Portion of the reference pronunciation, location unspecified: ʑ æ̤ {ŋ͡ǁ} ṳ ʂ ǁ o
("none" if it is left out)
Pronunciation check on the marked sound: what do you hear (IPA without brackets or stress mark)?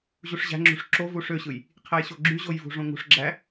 ŋ͡ǁ